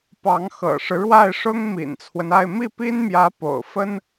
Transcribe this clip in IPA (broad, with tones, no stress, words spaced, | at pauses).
pɑ˧˥ŋxɤ̰˨˩ʂɻ̩˦ ɻwa˥˩ɪ̯ʂʊ˥ŋ mḭ˨˩nt͡sʰwə˦na˥˧ɪ̯ mi˥˩pi˥nmjä˧˥ po̰˨˩ʊ̯fə˥n